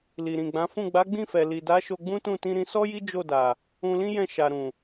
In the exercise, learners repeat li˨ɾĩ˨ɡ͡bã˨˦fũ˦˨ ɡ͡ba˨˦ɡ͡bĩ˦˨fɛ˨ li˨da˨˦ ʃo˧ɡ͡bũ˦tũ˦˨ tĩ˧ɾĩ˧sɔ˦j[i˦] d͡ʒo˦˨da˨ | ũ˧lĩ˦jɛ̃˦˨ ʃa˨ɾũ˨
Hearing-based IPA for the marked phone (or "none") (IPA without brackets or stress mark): i˦